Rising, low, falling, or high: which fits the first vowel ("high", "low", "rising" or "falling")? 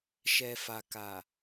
low